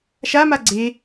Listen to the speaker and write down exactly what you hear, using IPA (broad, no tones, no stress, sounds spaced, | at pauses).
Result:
ʃ a m a ɡ͡ǀ e